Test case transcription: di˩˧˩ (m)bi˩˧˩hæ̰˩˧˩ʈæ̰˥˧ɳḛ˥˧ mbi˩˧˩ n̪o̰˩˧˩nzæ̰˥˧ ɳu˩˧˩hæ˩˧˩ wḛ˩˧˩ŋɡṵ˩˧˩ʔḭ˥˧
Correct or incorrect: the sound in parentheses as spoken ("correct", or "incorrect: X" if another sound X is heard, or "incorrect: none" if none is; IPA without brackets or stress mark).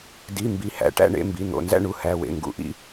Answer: correct